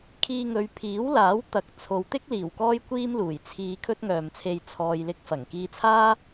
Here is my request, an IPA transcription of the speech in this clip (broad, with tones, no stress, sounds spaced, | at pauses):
kʰ iː˧ ŋ ɵ˨˧ ɥ pʰ iː˨˥ w l aː˨˥ w t̪ ɐ˨ k̚ t͡sʰ o˨˧ w t̪ ɪ˥ k̚ l iː˨˩ w k ɔː˥ j kʷ iː˥ m l uː˨˩ j t͡sʰ iː˧ kʰ ɵ˥ t̚ ŋ œː˨ m t͡sʰ e˧ j t͡sʰ ɔː˨ j l ɪ˧ k̚ f ɐ˨˩ ŋ k iː˧ t͡sʰ aː˥